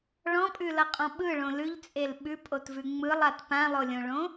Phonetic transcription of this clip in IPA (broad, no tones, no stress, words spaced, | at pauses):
ɭɔ̃pʼʉlʌqʼɔ̃ ɓɯɭõ lʉʎt͡sʼel ɓʉpʼotvʉ ŋ͡mɯlˠat pãlˠolʲõɭõ